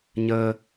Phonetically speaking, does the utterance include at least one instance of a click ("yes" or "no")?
no